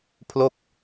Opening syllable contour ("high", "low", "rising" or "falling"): falling